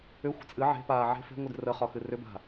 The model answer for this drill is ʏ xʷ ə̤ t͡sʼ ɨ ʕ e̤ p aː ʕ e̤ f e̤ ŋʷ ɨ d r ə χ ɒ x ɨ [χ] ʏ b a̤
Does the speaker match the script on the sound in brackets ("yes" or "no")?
no